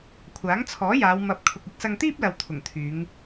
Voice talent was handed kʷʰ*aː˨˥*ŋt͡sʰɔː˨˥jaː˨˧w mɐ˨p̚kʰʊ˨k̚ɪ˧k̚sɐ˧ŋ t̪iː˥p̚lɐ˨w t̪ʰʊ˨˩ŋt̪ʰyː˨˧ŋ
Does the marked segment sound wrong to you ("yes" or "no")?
no